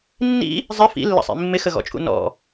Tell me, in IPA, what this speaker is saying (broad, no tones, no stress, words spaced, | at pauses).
nːḭ | zˤɪ fḭlːə̰sˤḭ mːɪxəɣɔ̰t͡ʃʼṵ nɔ̰